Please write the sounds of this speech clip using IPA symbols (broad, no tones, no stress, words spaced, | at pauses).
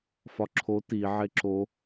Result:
fɒǁʰo ti ʕeǁo